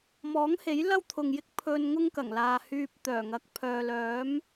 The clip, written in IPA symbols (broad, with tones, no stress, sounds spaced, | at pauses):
m ɔː˨˥ ŋ h e˨˥ j l ɐ˥ w t̪ʰ ʊ˨ ŋ j ɪ˥ k̚ pʰ ɵ˧ n ŋ ʊ˥ ŋ k ɐ˨˩ ŋ l aː˨ h yː˧ p̚ t̪ œː˨˩ ŋ ɐ˨˥ k̚ pʰ œː˨ l œː˨˥ m